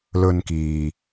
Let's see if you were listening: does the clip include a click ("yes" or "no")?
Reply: no